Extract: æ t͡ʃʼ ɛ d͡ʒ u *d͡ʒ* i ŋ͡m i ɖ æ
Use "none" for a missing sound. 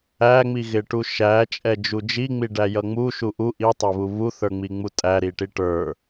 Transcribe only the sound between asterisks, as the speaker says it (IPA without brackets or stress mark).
d͡ʒ